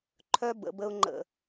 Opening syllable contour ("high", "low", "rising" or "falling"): high